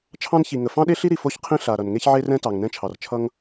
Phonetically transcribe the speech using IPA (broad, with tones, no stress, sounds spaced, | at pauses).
t͡ʃʰ ɑ̃˥ n ç i˩ ŋ ə˩ f ɑ̃˥ ɗ e˥ ɬ i˥ ɾ i˩ f o˥ ç qʰ ĩ˥ ɬ a˩ ɾ ʌ˩ n ŋ e˥ ç ʕ e˥ r ɛ̃˥ t ɑ˩ ŋ n ɛ̃˥ t͡ʃʰ ɑ˩ r t͡ʃʰ ʌ˥ ŋ